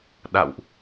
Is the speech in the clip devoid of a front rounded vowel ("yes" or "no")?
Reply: yes